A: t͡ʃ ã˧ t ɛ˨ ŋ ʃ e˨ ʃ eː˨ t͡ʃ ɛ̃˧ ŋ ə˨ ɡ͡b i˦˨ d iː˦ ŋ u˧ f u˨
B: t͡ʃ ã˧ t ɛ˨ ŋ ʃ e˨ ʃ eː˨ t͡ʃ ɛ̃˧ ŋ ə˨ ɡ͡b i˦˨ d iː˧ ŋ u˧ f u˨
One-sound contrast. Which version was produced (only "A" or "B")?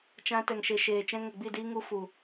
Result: A